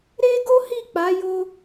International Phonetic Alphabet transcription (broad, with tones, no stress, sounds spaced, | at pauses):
ɾ e˦ ɡ o˦ h i˦˨ k͡p a˨˦ j o˦